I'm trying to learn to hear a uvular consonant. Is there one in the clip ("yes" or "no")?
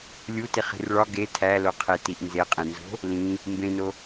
yes